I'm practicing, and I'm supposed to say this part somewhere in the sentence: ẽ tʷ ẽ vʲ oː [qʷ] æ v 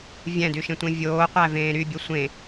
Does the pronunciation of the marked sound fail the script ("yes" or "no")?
no